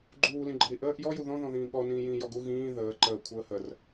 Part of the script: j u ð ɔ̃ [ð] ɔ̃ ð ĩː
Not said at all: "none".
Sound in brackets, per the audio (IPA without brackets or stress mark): ð